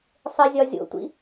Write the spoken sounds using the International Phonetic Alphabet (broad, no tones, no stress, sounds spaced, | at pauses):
sˤ e zʲ ɒ zʲ o̰ tʷ ḭ